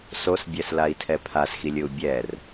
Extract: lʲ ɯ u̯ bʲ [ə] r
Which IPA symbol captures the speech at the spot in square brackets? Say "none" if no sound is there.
ɛ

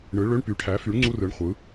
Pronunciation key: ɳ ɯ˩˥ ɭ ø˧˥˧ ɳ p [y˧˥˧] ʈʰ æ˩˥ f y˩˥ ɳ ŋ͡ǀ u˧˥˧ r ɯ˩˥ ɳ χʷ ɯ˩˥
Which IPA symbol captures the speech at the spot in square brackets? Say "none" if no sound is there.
y˩˥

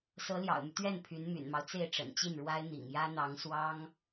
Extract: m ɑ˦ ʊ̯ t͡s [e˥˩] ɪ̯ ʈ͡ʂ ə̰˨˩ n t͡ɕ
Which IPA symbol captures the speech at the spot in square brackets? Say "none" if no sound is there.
e˥˩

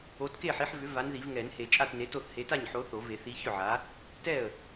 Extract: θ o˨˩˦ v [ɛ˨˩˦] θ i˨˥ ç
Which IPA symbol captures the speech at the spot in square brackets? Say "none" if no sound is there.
e˨˩˦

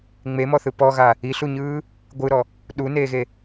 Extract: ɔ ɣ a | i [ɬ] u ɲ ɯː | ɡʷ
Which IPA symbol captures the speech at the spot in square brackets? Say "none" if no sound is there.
ɬ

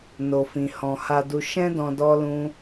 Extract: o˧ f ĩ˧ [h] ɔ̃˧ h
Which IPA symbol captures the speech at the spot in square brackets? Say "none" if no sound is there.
h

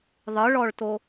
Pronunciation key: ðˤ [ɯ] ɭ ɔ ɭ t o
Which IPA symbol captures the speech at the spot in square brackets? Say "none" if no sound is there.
ɯ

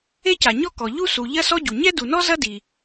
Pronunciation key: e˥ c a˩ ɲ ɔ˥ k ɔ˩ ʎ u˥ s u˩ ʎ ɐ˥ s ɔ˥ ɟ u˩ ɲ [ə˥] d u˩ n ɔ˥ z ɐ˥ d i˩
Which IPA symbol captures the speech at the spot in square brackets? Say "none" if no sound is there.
ɛ˥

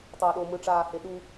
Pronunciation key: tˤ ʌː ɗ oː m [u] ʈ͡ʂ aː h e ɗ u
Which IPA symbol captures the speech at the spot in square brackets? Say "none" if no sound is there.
ɯ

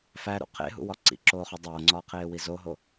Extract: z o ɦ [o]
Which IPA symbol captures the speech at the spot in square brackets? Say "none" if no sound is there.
o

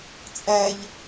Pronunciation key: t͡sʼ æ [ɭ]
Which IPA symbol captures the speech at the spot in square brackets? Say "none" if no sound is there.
ʎ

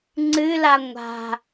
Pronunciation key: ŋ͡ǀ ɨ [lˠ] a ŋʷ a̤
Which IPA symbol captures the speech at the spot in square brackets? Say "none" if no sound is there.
l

